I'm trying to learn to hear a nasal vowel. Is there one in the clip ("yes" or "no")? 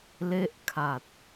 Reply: no